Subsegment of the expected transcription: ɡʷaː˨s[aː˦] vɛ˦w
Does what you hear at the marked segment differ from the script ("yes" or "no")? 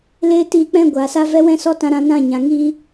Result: yes